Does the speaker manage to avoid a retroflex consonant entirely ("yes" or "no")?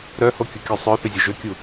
yes